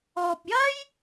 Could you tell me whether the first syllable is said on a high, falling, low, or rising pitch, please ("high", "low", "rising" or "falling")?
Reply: low